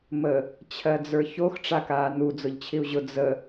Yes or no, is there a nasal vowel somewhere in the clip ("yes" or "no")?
no